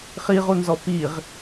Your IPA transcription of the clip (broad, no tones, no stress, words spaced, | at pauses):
χiʁunzɔ piʁ